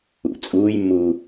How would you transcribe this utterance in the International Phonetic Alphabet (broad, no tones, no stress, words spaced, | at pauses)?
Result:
ṵ t͡sʼuːjmːuː